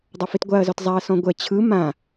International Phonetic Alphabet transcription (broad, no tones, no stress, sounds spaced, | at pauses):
dˤ ʌ f i t ɡʷ a ɐ̯ z ɔ t zˤ a ɐ̯ s ɔ̃ ɡʷ ɛ t͡ɕʰ ɯ m ã